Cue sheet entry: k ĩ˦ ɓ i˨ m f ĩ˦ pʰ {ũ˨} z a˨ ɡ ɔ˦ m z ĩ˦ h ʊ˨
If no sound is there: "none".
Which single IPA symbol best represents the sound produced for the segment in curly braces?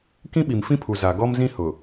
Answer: u˨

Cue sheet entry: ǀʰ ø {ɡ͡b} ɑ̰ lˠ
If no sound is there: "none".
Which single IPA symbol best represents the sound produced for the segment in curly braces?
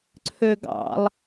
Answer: ɡ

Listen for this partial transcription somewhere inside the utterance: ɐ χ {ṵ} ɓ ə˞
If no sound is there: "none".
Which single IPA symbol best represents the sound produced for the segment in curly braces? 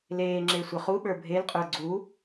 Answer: u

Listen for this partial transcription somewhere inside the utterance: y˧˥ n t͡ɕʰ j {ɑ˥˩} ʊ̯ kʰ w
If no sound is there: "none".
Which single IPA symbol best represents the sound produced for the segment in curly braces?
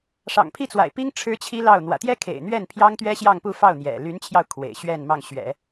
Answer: ɑ˧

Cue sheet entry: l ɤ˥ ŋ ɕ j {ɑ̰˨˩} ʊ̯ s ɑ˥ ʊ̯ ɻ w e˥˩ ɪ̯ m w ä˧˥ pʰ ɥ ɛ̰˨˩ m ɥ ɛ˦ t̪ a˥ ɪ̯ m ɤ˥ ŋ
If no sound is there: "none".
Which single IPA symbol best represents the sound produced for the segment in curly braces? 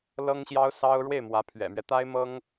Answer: ɑ˥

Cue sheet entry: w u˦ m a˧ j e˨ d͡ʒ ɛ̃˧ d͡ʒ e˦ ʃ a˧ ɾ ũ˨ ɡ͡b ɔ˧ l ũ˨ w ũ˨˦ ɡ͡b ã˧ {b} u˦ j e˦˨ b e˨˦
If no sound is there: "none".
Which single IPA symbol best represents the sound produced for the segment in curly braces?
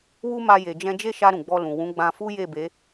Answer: f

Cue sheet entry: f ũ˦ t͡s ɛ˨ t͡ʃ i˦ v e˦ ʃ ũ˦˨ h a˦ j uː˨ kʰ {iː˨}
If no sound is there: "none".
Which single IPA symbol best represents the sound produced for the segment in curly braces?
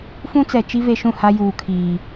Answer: iː˨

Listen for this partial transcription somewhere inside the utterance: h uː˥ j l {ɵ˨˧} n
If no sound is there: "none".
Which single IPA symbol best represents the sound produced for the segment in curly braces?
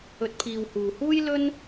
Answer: ɵ˥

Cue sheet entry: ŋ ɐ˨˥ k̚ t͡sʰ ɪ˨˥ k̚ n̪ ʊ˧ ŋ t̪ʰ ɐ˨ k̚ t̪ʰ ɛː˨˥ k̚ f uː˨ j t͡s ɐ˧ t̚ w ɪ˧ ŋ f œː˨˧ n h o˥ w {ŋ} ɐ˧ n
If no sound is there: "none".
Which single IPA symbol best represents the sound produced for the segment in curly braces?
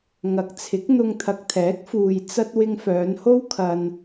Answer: kʰ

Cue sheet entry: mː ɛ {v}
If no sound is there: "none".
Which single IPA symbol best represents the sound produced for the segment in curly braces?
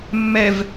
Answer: v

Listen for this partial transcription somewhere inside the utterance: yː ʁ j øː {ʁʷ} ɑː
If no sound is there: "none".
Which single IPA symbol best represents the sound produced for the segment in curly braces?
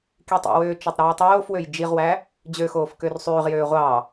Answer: ʁʷ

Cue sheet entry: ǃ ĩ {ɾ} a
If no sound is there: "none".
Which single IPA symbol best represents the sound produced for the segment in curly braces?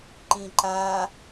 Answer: ǃ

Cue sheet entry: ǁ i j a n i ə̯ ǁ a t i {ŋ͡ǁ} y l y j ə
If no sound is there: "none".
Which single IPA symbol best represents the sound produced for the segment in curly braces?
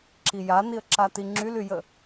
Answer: ŋ͡ǁ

